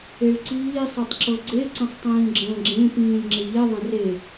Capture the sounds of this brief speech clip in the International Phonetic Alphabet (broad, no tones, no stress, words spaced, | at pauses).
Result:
eɭǀiː sˤetˤǁɤɡ͡ǀe ǀə̃sˤtˤĩːɡ͡ǁə̃ːɡ͡ǁẽ pĩːlʲŋ͡ǁeʎi ðˤə̃re